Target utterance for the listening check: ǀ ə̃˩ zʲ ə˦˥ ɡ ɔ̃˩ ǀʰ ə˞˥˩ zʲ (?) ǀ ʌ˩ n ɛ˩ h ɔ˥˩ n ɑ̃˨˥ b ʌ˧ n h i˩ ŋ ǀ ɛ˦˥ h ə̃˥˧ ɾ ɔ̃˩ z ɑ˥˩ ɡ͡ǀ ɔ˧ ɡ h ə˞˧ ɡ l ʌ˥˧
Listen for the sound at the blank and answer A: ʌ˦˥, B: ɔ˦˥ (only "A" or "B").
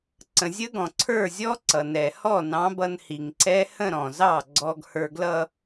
B